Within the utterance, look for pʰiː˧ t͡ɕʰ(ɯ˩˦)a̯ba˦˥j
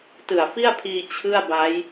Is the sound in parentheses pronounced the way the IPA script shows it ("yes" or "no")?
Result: no